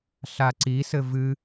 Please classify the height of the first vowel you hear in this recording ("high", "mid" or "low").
low